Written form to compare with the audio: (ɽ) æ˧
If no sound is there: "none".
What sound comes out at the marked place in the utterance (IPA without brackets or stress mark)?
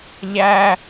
ʎ